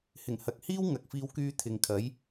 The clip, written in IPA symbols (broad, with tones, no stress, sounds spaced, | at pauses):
h ɪ˨˩ ŋ h ɐ˨ k̚ h iː˥ w ŋ ɐ˨ k̚ f iː˧ w k yː˧ t̪ʰ ɪ˨ ŋ kʰ ɐ˨˥ j